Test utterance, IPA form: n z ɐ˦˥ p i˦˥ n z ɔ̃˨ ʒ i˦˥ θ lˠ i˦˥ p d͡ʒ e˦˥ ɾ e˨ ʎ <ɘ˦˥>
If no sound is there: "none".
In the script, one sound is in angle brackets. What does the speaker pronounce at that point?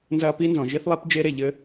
ɘ˦˥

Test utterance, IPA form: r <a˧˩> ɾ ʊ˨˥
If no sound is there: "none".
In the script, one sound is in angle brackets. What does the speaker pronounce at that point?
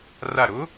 a˧˩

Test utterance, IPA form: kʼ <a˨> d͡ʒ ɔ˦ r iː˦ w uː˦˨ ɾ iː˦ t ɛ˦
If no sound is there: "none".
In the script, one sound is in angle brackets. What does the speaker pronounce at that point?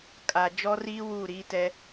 a˨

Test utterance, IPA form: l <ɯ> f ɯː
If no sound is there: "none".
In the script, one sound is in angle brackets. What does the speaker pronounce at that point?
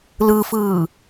ɯ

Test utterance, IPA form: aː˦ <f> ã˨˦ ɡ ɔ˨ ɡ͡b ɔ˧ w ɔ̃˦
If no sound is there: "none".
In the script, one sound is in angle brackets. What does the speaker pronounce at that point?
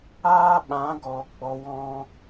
ɓ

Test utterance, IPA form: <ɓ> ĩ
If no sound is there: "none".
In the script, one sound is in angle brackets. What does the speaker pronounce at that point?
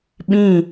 ɓ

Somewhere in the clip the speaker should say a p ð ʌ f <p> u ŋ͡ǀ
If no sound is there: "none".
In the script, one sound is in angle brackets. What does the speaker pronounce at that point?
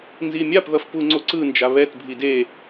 p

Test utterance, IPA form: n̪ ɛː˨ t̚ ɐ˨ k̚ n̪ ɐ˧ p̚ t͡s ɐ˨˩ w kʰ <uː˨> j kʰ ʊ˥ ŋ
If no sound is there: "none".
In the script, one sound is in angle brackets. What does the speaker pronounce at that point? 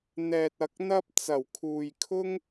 uː˨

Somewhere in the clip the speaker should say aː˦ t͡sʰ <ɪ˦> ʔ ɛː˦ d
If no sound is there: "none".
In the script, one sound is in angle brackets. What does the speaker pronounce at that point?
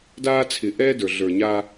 ɪ˨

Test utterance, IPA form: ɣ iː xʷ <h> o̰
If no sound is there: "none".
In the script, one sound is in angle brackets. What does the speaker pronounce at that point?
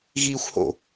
h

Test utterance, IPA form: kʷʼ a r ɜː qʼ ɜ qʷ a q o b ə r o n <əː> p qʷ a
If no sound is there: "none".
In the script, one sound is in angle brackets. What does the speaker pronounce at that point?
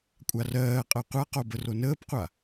əː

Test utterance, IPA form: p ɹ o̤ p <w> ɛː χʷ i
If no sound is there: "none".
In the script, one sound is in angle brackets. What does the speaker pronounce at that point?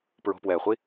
w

